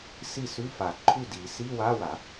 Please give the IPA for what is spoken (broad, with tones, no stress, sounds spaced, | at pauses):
s i˥˩ s ʉ˧˥˧ f a˨˩˦ ǃʰ ʉ˥˩ d i˨˩˦ s i˧˥˧ w a˧˥˧ w a˨˩˦